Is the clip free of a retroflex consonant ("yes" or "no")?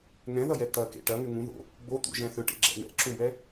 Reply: no